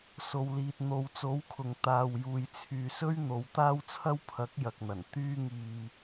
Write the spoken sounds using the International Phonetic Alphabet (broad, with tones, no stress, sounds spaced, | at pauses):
s o˨ w l iː˨ t̚ n̪ o˨˧ w t͡s o˨˥ w kʰ ʊ˨ ŋ t̪ aː˨ w j uː˨ j t͡sʰ yː˨ s ɵ˥ ɥ n̪ o˨˧ w t̪ aː˥ w t͡sʰ ɐ˥ w pʰ ɐ˨˥ k̚ j ɐ˨ k̚ n̪ ɐ˨˩ n t̪ yː˥ ŋ iː˧